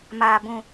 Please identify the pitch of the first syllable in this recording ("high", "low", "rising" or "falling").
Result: low